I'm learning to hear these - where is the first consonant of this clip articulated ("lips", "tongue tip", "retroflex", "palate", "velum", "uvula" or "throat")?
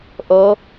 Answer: throat